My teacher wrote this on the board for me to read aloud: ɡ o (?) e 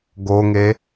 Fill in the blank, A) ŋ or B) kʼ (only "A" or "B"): A